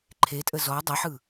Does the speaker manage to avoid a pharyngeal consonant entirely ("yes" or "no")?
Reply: no